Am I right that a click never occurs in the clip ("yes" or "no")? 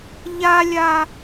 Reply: yes